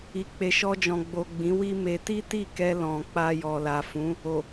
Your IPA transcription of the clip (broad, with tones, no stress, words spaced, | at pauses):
i˨k͡pe˨ʃɔ˧d͡ʒɔ̃˨ ɡ͡bo˨ ɡ͡bĩ˨˦wi˦me˧ ti˦ti˦˨kɛ˧ lɔ̃˨ k͡pa˧ jɔ˨la˨fũ˨˦ | o˨